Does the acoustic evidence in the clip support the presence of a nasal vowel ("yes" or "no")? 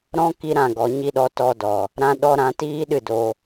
yes